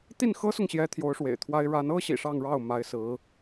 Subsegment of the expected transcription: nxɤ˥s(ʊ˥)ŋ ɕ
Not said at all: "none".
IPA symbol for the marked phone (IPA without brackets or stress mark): ʊ˨